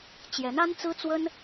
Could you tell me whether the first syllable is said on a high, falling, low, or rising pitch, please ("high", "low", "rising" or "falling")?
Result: rising